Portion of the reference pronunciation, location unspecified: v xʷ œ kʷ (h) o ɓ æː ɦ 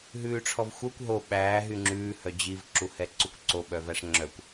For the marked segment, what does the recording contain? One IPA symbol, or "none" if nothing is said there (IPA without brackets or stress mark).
ɦ